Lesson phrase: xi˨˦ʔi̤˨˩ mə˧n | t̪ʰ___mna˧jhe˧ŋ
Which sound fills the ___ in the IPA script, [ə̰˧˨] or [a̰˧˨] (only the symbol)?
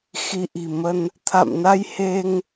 a̰˧˨